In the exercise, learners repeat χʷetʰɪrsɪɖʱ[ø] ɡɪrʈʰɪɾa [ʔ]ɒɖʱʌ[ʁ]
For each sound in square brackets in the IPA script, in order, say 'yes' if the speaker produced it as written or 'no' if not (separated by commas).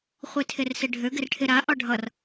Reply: yes, yes, no